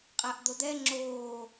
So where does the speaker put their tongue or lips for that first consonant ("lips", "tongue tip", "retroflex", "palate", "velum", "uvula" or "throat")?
uvula